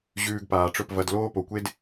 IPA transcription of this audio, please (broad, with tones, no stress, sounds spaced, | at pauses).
ʑ ʉː˧ ɡ p aː˨ ʈ͡ʂ ɵ˦˨ p v ɐ˧ d l oː˦ p o˨ kʷ e˦ d